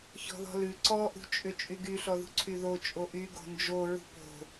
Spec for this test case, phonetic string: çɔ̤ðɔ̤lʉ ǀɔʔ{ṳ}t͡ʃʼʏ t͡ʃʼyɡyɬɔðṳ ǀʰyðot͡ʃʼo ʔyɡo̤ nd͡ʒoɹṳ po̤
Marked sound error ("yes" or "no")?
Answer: no